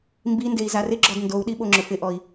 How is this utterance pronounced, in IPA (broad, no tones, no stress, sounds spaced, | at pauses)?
m b i n d e i̯ z a r ɪ ɡ͡ǁ ɔ d n d o u̯ ɗ i ɓ o ŋ͡ǁ ʊ f ɪ ʔ ɔ i̯